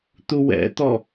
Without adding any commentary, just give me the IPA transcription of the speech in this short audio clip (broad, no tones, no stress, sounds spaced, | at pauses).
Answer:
t̪ u w ɛ̰ t̪ ɔ